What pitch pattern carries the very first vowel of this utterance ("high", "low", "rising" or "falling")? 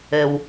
low